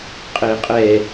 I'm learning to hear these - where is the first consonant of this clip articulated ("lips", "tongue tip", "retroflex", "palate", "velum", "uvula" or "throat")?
uvula